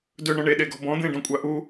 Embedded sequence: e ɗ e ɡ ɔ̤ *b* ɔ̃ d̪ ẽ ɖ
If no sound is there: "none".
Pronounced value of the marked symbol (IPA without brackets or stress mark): b